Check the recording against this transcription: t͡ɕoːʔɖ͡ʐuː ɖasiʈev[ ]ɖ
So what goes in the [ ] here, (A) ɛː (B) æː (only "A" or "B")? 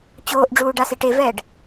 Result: A